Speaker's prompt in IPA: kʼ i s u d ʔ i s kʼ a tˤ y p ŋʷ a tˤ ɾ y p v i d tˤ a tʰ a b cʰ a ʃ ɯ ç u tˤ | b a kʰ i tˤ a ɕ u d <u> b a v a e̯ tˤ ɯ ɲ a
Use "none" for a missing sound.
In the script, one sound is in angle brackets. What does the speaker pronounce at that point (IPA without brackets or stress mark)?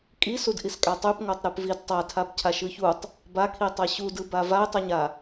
ɯ